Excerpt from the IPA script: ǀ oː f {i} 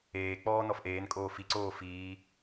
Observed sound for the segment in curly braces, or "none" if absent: iː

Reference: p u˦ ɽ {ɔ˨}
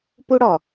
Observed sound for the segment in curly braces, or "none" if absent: ɔ˨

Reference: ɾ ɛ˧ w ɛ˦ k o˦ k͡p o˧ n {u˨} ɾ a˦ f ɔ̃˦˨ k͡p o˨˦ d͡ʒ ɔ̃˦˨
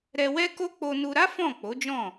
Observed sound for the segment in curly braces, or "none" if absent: u˧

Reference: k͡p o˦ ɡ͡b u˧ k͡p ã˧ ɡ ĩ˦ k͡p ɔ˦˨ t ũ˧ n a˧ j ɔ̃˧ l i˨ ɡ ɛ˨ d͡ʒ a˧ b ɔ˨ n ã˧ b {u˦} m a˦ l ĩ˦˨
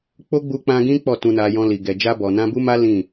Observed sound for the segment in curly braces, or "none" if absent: u˦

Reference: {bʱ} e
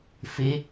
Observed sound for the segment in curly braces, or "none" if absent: f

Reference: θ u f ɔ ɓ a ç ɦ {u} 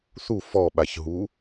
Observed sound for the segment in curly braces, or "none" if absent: u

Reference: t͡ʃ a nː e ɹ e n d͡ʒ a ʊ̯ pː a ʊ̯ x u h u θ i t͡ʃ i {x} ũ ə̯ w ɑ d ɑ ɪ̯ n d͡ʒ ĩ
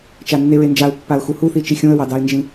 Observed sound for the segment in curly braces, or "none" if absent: xʲ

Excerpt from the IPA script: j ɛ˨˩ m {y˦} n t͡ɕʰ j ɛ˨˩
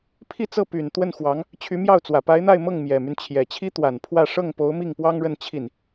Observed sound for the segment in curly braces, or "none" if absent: y˦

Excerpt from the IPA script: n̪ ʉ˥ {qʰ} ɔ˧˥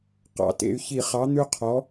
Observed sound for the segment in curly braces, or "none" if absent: qʰ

